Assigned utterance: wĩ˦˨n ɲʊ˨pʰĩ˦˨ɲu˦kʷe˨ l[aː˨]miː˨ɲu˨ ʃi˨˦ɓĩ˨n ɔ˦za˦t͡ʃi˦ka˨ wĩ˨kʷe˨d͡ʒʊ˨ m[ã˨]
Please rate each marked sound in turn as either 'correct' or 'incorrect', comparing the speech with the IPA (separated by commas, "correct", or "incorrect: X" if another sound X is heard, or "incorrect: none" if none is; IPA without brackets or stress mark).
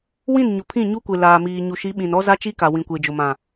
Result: correct, correct